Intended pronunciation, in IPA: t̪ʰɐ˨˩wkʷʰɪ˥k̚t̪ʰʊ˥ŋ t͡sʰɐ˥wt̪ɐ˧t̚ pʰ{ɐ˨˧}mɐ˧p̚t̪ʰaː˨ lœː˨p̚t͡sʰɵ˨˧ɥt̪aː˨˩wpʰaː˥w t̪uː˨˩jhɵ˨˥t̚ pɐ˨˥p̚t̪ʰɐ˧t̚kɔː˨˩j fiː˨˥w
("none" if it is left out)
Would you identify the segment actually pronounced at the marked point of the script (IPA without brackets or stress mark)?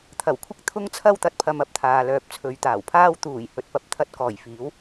ɐ˧